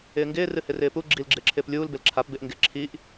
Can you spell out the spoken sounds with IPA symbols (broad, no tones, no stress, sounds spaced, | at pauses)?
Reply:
ɪː ŋ ɡ ɪː r ɨ h ɪ r ɪː p u ɡ͡ǁ i l ɡ͡ǁ ɪː ǁʰ ɪː p lʲ uː l b ɪ l ǁʰ a p b ɪ ʔ ŋ ɡ ɪ ǁʰ i ʔ